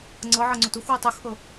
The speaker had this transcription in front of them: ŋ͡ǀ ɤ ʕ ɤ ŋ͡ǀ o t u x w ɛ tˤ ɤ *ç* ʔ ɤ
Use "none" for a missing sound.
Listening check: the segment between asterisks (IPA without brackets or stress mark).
x